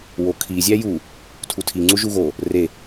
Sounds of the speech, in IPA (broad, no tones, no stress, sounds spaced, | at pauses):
w o kʰ i zʲ æ j u | tʰ u tʰ i ŋ͡ǀ u ʒ u ɣ o | r e